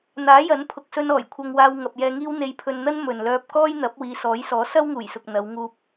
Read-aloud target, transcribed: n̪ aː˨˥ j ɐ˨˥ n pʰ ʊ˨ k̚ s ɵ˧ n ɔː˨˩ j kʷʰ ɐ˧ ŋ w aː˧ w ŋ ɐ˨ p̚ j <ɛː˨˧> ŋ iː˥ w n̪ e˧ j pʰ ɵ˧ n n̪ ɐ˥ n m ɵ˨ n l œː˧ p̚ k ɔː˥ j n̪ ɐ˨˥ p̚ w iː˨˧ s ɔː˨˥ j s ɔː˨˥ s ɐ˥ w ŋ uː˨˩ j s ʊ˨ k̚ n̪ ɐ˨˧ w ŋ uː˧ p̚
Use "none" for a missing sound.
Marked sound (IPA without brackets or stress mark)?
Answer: ɛː˧